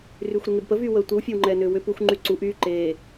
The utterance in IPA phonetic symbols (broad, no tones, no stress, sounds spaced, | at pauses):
r yː xʷ ɾ e ŋ e b p ə v yː w əː tʷ i w fʲ ɛ w ŋ͡ǃ ɛː n ʏː w ʏ p u xʷ ŋ͡ǃ y ǀ u ʔ yː ǃ eː